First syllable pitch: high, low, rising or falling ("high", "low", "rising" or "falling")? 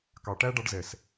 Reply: low